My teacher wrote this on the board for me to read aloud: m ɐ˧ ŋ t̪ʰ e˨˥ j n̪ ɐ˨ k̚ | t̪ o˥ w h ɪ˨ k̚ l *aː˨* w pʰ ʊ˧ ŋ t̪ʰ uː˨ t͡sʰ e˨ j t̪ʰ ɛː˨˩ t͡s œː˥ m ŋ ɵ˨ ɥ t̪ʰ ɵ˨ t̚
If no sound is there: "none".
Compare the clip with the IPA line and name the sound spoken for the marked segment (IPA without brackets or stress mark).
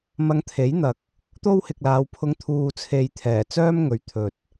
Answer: aː˨˧